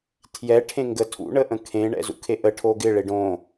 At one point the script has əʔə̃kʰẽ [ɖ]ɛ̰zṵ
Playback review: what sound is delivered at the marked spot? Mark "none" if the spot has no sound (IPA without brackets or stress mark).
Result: ɳ